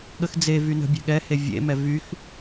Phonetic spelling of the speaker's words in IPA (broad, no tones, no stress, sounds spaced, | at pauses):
ɠ ə x d͡z e v y n ə̤ bʲ ɛ̤ ɠ ɛ h e vʲ ḛ m ɛ v y x